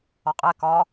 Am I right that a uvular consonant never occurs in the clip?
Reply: no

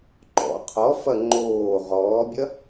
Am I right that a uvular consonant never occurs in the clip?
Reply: no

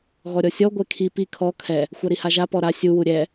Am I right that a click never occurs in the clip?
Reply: yes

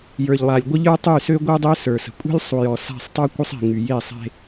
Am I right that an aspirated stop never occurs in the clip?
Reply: yes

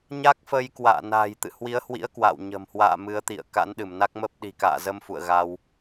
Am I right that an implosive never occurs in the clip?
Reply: no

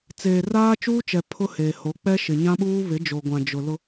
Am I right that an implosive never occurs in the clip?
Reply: no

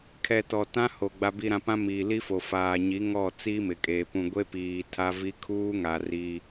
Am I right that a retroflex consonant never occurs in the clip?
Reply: yes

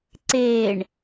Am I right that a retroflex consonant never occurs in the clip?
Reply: no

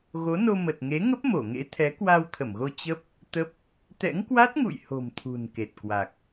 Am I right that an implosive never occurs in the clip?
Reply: yes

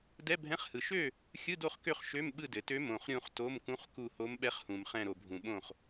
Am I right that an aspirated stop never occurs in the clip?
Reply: yes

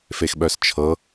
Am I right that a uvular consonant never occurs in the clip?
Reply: yes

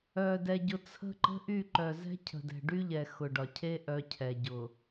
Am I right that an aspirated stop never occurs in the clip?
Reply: no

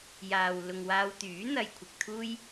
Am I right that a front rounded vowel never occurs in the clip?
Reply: no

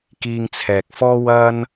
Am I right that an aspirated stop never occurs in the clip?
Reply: no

